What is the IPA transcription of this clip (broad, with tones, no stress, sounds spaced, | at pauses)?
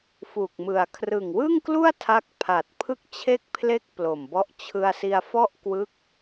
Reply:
f u˨˩ k̚ m ɯ˨˩ a̯ kʰ r ɯ˨˩ ŋ w ɯ˥˩ ŋ k l u˥˩ a̯ tʰ a˦˥ k̚ pʰ a˨˩ t̚ pʰ ɯ˥˩ k̚ t͡ɕʰ e˥˩ k̚ pʰ l e˥˩ k̚ p l o˨˩ m b ɔ˦˥ ʔ t͡ɕʰ ɯ˧ a̯ s i˧ a̯ f ɔ˥˩ ʔ k w ɯ˦˥ k̚